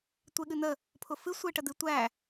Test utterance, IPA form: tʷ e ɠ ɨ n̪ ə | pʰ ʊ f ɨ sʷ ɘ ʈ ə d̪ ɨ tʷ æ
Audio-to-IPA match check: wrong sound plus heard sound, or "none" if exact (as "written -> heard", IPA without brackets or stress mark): ɘ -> e